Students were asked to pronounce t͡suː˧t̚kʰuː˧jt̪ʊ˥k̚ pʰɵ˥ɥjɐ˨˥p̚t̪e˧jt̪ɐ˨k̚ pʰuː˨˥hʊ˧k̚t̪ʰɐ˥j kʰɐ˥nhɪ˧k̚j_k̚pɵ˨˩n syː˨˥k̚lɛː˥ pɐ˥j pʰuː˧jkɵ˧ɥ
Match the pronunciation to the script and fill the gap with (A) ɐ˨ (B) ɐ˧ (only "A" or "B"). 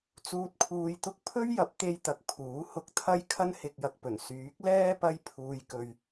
A